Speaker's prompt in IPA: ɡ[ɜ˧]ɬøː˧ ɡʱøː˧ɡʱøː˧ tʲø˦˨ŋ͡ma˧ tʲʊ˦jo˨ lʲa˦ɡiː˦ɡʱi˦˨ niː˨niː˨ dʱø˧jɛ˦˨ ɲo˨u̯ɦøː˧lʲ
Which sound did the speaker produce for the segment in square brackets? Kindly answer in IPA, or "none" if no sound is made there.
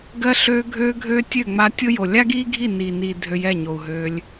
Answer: ɜ˧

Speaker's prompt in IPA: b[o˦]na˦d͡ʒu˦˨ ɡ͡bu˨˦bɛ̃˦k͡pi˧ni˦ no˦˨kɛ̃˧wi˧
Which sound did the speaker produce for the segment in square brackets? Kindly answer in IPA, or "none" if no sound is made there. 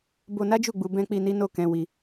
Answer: o˧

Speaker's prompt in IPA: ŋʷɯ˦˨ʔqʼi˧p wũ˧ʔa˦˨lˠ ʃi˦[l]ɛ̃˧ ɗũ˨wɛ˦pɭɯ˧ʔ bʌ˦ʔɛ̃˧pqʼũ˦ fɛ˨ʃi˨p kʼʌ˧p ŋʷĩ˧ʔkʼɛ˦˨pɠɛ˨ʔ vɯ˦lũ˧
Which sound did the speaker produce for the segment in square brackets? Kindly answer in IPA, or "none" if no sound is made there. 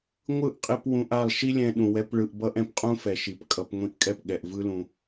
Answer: lʲ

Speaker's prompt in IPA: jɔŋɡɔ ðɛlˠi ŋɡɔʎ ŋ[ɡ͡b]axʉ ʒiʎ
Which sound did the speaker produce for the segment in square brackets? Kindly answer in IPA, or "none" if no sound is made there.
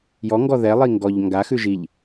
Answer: ɡ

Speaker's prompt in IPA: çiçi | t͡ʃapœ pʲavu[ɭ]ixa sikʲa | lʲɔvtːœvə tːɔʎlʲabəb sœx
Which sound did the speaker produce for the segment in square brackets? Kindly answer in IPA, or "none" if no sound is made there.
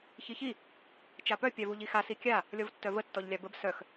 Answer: ʎ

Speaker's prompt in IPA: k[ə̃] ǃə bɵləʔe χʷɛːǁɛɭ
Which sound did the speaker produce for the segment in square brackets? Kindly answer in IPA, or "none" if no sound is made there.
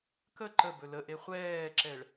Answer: ə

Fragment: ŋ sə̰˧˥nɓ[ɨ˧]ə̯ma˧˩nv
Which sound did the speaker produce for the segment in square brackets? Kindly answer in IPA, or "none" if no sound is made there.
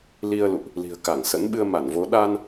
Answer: ɨ˧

